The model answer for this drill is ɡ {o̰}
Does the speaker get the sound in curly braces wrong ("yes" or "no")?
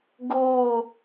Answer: yes